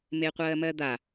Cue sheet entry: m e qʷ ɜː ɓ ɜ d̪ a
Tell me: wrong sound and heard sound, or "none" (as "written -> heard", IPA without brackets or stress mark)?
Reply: ɓ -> m